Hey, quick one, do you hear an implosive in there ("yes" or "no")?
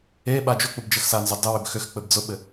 yes